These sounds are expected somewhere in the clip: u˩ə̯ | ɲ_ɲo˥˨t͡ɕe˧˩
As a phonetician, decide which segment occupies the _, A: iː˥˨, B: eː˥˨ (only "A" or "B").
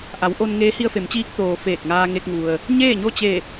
B